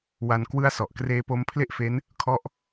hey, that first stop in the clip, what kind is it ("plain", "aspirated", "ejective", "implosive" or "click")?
plain